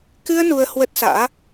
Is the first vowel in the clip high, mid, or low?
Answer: high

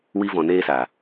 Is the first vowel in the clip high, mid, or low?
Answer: high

